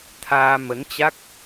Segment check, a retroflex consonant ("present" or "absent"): absent